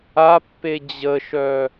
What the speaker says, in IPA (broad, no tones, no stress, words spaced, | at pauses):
apːe d͡ʑəʃœ